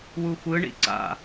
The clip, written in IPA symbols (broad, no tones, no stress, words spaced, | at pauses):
wuxʷɯ ɳḭǀa̰